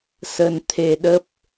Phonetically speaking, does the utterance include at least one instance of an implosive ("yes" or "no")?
yes